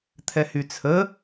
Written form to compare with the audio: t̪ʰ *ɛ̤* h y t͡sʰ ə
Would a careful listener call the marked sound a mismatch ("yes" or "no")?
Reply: yes